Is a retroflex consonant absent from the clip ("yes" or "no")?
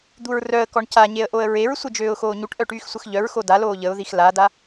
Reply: no